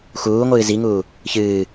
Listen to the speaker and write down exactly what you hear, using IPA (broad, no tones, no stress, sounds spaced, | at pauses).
x uː ŋʷ ɨː z i ŋ uː | ç ɨː